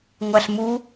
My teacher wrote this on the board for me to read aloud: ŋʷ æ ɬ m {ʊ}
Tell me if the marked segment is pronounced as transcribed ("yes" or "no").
no